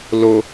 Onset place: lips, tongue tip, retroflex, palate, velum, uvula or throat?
tongue tip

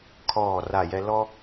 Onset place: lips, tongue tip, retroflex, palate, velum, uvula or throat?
velum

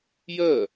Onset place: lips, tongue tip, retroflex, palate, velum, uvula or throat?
palate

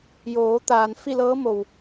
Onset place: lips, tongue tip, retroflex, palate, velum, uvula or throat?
palate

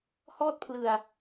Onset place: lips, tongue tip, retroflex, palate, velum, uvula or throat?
throat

